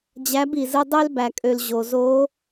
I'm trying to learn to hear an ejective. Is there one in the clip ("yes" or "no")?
yes